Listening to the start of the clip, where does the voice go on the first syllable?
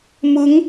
rising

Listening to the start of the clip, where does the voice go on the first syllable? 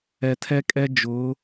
low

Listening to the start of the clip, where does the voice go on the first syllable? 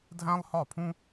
high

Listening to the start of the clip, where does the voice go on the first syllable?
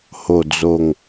low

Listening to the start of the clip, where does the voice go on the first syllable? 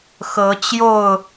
rising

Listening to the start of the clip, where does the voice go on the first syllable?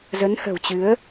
rising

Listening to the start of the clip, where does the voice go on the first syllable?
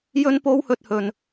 high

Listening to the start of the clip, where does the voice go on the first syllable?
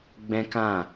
high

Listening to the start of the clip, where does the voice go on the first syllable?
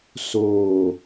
low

